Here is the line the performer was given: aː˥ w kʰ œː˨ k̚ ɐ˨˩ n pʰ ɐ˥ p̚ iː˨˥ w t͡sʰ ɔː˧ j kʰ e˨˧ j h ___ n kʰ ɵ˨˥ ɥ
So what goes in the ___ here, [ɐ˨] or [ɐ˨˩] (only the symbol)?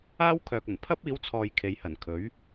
ɐ˨˩